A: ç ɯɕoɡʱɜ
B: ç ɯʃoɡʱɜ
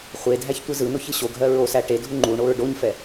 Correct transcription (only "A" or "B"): A